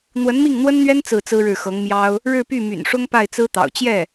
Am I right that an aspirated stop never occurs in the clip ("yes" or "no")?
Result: yes